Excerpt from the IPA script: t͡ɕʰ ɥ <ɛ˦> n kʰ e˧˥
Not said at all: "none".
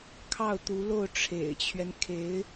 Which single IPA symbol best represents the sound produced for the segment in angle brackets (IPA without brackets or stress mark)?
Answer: ɛ˦